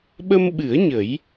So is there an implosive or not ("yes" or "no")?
yes